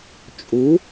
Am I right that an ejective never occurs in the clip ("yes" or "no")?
no